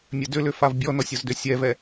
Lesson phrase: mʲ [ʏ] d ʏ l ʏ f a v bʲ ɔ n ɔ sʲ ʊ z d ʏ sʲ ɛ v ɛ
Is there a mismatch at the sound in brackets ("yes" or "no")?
yes